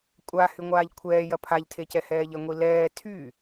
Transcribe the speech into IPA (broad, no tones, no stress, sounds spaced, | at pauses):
kʷʼ a h y ŋʷ aː ʎ kʷʰ ɛː j ɐ pʰ a ʎ tʰ e c ɛ h ɛː ʎ ɐ ŋʷ i l ɛː tʰ y